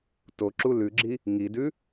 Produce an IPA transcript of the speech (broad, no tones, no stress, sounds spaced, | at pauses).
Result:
t o ǁ u l ʉ ɡ͡ǁ i | ŋ i d ʉ